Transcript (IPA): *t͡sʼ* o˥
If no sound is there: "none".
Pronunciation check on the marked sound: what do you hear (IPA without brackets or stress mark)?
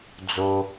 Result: d͡z